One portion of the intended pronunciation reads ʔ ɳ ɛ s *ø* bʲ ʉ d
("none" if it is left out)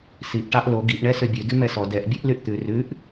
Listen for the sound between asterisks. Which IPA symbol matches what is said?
ø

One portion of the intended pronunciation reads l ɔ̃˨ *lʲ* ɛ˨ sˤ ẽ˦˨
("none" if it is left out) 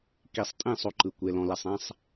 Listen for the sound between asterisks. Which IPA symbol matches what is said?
l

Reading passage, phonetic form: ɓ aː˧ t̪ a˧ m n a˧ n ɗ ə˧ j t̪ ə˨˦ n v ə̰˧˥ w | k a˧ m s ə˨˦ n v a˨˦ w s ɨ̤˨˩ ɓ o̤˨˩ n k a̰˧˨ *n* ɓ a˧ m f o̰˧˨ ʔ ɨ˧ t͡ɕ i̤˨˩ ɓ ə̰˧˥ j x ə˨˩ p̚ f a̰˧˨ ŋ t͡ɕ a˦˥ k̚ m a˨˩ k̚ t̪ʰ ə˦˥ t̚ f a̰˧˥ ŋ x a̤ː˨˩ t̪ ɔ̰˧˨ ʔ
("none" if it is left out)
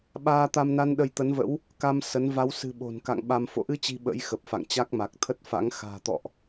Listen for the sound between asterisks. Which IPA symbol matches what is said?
ŋ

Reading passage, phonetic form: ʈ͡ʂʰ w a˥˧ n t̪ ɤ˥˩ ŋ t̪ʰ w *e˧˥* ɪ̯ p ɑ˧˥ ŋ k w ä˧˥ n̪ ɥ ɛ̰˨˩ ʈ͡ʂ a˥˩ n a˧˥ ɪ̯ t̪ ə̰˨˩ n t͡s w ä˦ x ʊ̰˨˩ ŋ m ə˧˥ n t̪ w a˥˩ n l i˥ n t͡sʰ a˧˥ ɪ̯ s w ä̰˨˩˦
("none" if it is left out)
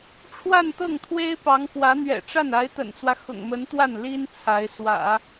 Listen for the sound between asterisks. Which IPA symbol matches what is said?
e˥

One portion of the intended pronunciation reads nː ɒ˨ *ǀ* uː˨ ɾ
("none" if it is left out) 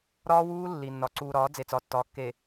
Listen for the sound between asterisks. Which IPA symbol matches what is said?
ǀ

